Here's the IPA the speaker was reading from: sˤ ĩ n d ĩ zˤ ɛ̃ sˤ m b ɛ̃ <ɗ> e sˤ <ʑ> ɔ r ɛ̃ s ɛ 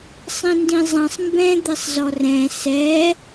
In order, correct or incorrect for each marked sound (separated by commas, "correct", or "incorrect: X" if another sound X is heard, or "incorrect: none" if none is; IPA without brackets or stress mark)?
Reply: incorrect: d̪, incorrect: z